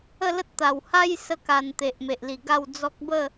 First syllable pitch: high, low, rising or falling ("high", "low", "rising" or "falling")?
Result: falling